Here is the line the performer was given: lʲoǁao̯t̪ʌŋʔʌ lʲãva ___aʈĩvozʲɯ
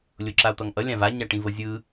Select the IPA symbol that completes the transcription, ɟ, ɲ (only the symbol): ɲ